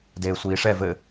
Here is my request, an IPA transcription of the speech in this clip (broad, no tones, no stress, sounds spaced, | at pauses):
d eː sʷ iː ʂ ɛ v ɘ